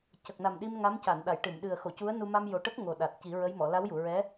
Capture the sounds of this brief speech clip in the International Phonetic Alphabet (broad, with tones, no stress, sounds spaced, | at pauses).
c ə˨˩ k̚ n a˨˩ m ɗ i˧ m ŋ a˧˥ m c a˨˩˨ n ɗ a˨˩˨ j ʈ ɨ˨˩˨ m ɗ ɨ˨˩ ə̯ x o˨˩˨ c u˧˥ ə̯ n u˧ m a˧ m j o˨˩ ʈ ə˦˥ k̚ ŋ o˨˩ ɗ a˨˩ t̚ c i˨˩˦ ɹ ə˧˥ j m ɔ˨˩˨ l a˧˥ w j u˨˩˨ ɹ ɛ˧˥